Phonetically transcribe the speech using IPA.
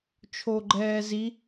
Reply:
t͡ʃʰ o ɡ͡ǃ ɛː z i

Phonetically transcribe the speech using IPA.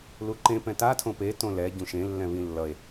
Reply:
l u ǃ ẽ p ɛ̃ t a tʰ õ p e t õ l ɛ ɟ ũ ʃ ẽ lː ɛ̃ β ĩ lː ʌ e̯

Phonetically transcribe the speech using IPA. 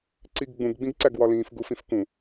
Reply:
ǀ i ɡ ɡ͡b ũ ɡ ɡ͡b ĩ ɡ ǀ æ ɡ w ɒ l ĩː f ɡ u f ĩ f k ũ

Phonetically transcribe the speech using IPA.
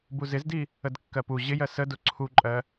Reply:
b u z ɪ z d i | ə d kː ɜ p u ʑ ɪ j ɜ s ə d ʊ ǀʰ u ǃʼ ɜ

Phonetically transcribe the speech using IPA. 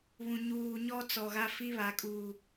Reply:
β ũ˨ ɲ uː˨ ɲ ɔ˦ t͡s ɔ˨ ɣ a˦ f i˦ β a˨ kʼ uː˨

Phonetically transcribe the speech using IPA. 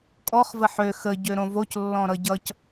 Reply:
kʼ ɔ χ v ə ħ ø x ə ɟ ø ɾ õ v o c lː ɔ̃ ɾ ʌ ɟ ʌ c

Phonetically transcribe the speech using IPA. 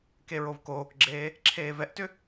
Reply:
k e ɹ o v k oː k ɡ͡ǁ eː | ǁʰ eː v ɛ ʔ t ʏ

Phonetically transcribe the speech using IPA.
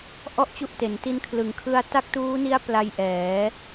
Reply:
ʔ ɔ˥˩ ʔ t͡ɕ u˦˥ ʔ t e˩˦ n t i˦˥ n kʰ l ɯ˩˦ ŋ kʰ ɯ˧ a̯ t a˦˥ k̚ t uː˦˥ n i˦˥ a̯ p l a˦˥ j ʔ ɛː˩˦

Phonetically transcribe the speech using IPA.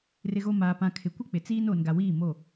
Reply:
r ɪ˦ ɣ o˦ m aː˨ p ã˨ kʰ ɪ˨ kʷ ɪ˦ k͡p ɪ˨ t͡s iː˦ n oː˨ n ɡ a˨ w iː˦˨ m o˦˨

